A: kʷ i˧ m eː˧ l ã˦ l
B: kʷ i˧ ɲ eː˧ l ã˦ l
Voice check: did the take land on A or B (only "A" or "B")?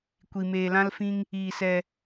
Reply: A